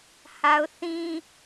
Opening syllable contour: high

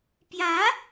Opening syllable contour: rising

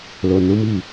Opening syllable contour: low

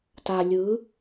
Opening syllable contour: low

